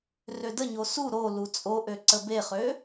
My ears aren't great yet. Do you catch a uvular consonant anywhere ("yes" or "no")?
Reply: yes